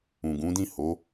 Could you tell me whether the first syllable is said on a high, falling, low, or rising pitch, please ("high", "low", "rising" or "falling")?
low